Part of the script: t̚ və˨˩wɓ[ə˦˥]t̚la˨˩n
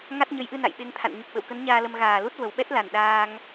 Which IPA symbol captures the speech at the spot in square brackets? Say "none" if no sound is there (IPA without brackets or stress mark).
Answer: ɛ˦˥